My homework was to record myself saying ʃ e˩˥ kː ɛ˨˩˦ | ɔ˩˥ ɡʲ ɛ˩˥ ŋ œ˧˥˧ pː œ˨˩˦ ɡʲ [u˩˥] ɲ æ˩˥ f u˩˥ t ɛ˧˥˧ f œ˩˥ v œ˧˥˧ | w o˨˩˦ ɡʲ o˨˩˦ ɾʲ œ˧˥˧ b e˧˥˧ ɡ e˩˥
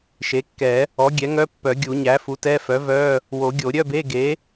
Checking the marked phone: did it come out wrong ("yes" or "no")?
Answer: yes